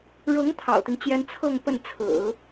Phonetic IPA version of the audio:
ɻɤ˧˥ŋ t̪ʰɑ̰˨˩ʊ̯t̪i˦ŋt͡ɕjɛ˥n t͡sʰɤ˥˧ŋ pə˥˩n t͡sʰɹ̩˨˩˦

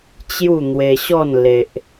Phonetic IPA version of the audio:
t͡ɕju˥˧ n̪we˧ɕɔ˥˧n le˦ʔ

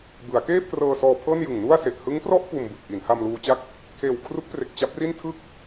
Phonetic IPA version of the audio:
bɯ˩˦a̯keː˥˩p̚trɤː˧sɔː˧ pʰɤː˥˩njɯ˨˩ŋnu˥˩a̯ se˨˩ʔ hɯ˦˥ŋprɔ˥˩ʔ puː˧mbɯ˨˩k̚ʔi˩˦n ha˧mluː˧t͡ɕa˥˩k̚ | kʰeː˨˩wkʰru˦˥k̚pre˨˩k̚ t͡ɕa˦˥p̚ri˥˩n tʰɯ˥˩k̚

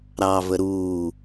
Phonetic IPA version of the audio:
ɾɑvə ɾuː

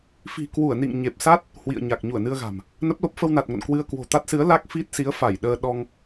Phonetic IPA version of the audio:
fi̤˨˩kwu˧˩ə̯nḭ˧˨ŋ ɲe˨˩p̚sa˦˥t̚ | hwḭ˧˨ə̯ɲa˨˩k̚ ɲu˧˩ə̯nɨ˧ə̯ɣa̤˨˩m | nə˦˥p̚lo˦˥p̚ fə˧wna˨˩t̚ŋo̰˧˨n kwɨ˧ə̯ kwo̤˨˩t̪a˦˥t̚sɨ˨˦ə̯ la˦˥k̚fi˦˥t̚ si˨˦ə̯fa˧˩j ɗəː˧ ɗɔ˧ŋ

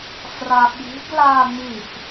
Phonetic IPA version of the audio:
fraɓi̤ɡ laːŋ͡mif

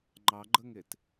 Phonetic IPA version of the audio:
ŋ͡ǃɑɡ͡ǃəŋet

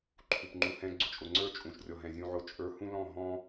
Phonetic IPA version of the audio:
ǃʰu˨pŋ͡ǃu˧hɛ̃˦ ɡ͡ǀʊ˧t͡ʃʼʊ˨ ŋ͡ǀə˞˦˨ t͡ʃʼũ˨ʃrʲɔ˨ɦɛ̃˨ zʲũ˨ ʕʊ˨t͡ʃʼə˞˨˦ hũ˦lɔ̃˦˨ ɦɔ̃˦

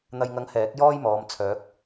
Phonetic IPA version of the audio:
n̪ɐ˨jŋɐ˨˥ŋ hɛː˨˥k̚ jɔː˥jmɔː˨˧m t͡sʰœː˨˥k̚

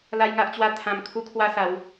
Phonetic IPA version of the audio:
la˦jŋa˦ʔt͡ɕwa˦ t̪ʰã˧m kʰu˦kʰwa˦sa˨˦w

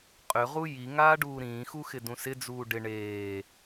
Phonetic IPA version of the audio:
qʼʏʁu ji ŋaːɖuːɾĩːxu xɪdũsɪd͡zuː ɖɪ ɳeː

